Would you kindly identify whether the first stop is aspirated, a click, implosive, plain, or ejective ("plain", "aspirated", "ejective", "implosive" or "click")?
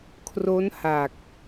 aspirated